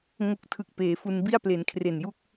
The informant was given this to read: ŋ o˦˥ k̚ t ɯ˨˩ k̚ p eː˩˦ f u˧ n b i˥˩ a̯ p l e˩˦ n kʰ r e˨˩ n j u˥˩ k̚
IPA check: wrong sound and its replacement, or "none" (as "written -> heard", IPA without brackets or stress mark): t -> tʰ